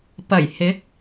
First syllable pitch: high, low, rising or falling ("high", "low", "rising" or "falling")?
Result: low